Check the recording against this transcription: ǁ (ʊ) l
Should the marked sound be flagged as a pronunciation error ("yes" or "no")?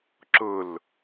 no